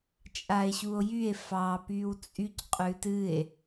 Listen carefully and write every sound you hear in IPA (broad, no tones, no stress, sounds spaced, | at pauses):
t͡ʃʼ a e̯ ɕ u o̯ j y e̯ f ɑ p y w t͡sʼ y c qʼ ʉ t ɨ e̯